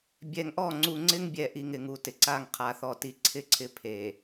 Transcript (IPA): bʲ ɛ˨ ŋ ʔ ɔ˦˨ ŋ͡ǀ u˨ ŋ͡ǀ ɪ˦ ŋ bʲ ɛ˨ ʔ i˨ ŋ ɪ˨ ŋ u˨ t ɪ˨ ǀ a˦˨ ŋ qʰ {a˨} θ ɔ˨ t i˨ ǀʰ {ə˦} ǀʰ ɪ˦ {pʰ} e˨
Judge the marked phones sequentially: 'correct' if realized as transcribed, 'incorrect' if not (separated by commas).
correct, incorrect, correct